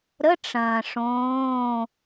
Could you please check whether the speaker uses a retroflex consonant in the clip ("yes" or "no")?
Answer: yes